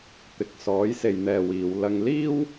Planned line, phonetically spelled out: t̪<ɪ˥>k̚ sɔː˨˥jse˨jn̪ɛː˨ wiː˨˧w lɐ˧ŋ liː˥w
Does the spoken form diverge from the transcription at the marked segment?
yes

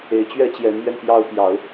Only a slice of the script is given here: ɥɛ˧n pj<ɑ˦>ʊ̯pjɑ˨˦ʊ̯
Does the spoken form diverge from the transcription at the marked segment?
no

